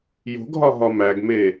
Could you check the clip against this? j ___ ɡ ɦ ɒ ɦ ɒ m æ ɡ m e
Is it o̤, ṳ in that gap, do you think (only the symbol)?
o̤